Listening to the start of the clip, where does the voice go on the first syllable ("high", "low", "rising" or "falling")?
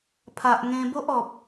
low